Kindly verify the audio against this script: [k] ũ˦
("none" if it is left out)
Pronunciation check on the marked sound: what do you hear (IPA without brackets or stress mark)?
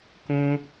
k